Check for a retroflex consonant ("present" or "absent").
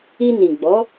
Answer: absent